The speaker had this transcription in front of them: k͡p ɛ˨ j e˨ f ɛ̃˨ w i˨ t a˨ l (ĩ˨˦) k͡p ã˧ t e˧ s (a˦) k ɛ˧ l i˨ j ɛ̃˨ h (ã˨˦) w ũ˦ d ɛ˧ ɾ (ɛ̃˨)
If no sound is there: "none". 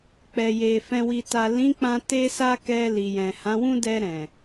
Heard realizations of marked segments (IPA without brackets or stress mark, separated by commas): ĩ˨˦, a˧, ã˨˦, ɛ̃˨